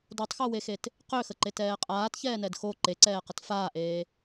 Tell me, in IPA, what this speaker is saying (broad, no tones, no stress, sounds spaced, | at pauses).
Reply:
d o tˤ x o w e x e t | q ø x ə ǃ e t ɛː qʼ aː t ç ɛː n ɛ d x o ǃ e ǀ ɛː q ə t f aː ʔ eː